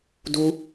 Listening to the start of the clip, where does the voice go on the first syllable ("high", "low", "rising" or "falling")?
high